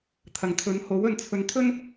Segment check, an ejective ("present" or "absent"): absent